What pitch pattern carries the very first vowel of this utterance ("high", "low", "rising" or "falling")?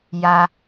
high